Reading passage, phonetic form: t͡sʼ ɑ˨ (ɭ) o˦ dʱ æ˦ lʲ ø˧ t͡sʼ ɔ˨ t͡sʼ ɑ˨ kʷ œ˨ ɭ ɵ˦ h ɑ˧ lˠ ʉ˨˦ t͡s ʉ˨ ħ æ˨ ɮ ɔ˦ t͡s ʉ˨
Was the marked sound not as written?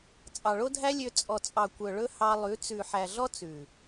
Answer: no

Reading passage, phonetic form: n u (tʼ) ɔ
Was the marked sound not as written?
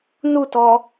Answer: yes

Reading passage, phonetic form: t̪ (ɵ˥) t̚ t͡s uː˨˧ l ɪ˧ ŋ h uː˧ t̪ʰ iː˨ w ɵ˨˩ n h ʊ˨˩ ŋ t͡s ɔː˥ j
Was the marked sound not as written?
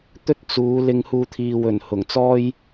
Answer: no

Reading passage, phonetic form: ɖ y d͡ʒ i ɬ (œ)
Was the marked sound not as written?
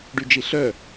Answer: no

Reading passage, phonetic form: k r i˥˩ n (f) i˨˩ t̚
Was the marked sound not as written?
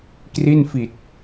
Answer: no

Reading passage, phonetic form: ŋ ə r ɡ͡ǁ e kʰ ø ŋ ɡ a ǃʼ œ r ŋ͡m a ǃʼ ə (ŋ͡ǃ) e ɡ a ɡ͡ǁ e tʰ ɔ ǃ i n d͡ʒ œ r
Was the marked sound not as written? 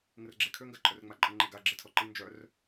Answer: no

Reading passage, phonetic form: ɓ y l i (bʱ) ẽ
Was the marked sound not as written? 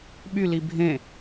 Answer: no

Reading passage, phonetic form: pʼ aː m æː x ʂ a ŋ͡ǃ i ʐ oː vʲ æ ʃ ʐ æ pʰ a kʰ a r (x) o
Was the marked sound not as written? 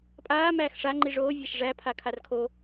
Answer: yes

